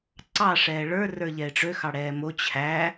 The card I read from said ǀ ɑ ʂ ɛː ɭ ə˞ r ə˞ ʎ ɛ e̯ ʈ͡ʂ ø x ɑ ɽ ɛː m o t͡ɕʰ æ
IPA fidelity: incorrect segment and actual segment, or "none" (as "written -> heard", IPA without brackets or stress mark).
none